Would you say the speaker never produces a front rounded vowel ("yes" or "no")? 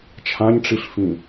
yes